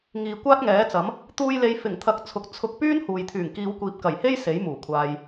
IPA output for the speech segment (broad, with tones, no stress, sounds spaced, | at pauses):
ŋ iː˨ kʷ aː˥ t̚ ŋ ɛː˨˥ t͡s ɐ˨˥ m | t̪ uː˧ j l e˨˧ j f ɪ˨˩ ŋ t̪ʰ ɐ˨˥ k̚ t͡sʰ ʊ˨ k̚ t͡sʰ ʊ˧ k̚ p yː˥ n h uː˨ j t̪ʰ yː˨˩ ŋ k iː˨˧ w kʷ iː˨ p̚ k ɐ˨˩ j h e˥ j s e˨˥ j m uː˨˩ kʷʰ aː˧ j